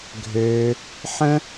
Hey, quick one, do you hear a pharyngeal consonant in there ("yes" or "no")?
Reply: yes